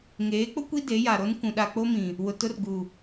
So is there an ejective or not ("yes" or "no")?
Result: no